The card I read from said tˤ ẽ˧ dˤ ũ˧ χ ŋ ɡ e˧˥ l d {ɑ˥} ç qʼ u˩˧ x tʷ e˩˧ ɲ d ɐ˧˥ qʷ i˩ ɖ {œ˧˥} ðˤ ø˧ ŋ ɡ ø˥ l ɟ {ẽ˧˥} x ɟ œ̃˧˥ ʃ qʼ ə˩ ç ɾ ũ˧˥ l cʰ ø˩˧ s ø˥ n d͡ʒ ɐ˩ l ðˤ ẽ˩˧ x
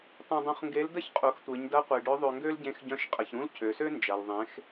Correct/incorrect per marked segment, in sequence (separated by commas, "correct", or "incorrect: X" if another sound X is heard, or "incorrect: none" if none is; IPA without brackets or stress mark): incorrect: ə˥, correct, correct